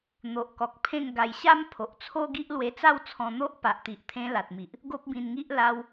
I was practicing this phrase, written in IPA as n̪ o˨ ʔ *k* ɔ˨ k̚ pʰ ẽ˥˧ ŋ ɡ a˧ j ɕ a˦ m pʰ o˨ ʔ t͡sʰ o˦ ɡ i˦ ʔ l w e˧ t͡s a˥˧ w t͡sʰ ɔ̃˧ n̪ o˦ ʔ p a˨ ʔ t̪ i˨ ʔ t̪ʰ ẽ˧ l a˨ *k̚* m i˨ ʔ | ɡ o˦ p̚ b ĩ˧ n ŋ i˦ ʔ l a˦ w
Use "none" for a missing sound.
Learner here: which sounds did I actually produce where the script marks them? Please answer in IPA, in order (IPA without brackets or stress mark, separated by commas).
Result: k, t̚